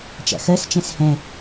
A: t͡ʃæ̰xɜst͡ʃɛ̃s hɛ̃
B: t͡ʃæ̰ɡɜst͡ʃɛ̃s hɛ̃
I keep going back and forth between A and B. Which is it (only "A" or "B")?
A